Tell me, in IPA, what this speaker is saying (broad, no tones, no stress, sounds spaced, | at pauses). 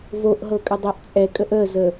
v o ʔ ɦ ɤ kʼ ə dˤ ɛ ʔ t͡sʼ ɛ kʼ ə ʔ ə z ə